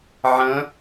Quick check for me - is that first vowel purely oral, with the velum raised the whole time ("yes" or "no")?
no